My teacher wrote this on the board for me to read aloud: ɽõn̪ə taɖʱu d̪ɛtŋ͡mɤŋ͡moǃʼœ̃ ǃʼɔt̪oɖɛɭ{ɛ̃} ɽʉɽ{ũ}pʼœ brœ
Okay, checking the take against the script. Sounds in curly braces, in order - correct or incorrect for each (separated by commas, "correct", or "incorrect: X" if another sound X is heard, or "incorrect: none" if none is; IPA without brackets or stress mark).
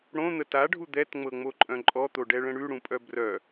incorrect: ə̃, correct